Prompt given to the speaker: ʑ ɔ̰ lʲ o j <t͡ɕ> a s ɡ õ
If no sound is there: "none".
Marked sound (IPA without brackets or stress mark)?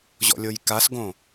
k